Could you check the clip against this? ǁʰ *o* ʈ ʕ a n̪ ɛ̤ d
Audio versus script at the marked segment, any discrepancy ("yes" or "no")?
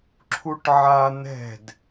yes